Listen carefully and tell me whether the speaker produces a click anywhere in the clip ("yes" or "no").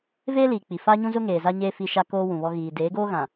no